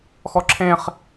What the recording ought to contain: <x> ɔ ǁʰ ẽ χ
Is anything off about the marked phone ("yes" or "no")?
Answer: no